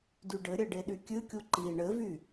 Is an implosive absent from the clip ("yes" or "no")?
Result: no